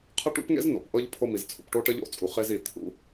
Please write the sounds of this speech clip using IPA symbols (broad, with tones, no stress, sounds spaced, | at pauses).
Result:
qʰ ə˦ ʈ ṵ˦ p ŋ ḛ˦ z n o̰˨ p ʔ ɤ˦ ʎ pʰ o˦ m i˨ z t͡sʰ ṵ˨ p ʈ o˦ ʈ ə˦ ʎ o̰˦ t͡sʼ u˨ χ e˦ z i˨ t̪ʰ ṵ˦